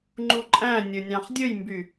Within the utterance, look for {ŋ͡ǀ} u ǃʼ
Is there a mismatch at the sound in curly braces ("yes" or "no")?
yes